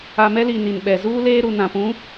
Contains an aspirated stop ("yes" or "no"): no